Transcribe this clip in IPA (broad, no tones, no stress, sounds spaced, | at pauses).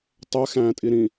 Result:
tˤ ɛ x æ̃ː tʼ i ɾ ĩ